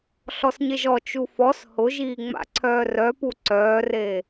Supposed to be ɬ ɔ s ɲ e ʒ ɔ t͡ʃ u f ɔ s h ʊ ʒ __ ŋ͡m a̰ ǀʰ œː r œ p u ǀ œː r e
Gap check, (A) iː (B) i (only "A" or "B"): A